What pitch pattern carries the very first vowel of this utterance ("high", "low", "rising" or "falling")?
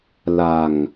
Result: low